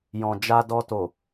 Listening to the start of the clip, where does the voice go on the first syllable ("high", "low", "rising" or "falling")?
low